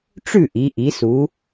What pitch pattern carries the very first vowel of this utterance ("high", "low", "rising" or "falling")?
falling